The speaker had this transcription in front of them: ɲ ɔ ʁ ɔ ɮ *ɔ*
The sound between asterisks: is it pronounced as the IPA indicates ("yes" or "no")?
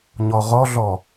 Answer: yes